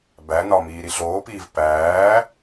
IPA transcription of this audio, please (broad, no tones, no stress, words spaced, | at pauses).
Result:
bæ nɒmiː ɾiɬoːpiːv pæː